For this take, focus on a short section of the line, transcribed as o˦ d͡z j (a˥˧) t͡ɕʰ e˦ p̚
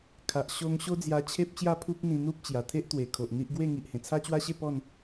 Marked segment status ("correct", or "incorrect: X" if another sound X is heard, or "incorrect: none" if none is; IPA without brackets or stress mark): incorrect: a˧